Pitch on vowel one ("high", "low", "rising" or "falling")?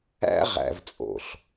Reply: high